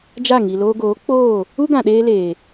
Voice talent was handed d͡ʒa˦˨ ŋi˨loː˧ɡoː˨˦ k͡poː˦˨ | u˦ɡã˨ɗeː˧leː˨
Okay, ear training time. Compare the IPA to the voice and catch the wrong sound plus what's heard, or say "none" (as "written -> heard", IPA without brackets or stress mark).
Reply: none